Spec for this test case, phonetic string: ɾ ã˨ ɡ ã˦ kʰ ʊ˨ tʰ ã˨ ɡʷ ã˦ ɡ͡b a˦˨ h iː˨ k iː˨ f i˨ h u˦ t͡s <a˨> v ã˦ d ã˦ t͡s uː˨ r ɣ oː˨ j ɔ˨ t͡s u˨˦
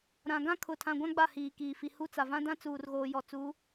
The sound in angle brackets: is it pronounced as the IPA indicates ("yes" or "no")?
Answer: yes